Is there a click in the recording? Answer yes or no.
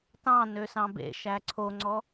yes